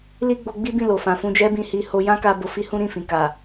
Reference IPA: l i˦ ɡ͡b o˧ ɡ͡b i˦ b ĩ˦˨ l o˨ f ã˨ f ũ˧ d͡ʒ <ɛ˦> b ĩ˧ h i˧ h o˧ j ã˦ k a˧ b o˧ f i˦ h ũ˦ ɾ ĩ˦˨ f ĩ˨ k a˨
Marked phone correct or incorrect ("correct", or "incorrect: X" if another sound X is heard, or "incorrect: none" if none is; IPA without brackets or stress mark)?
correct